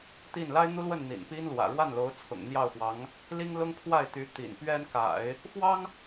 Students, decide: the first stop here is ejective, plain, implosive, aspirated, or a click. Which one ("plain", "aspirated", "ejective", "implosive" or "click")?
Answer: plain